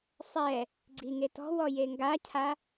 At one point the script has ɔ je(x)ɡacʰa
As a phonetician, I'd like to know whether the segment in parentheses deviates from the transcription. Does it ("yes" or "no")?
yes